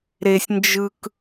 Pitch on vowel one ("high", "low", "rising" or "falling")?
high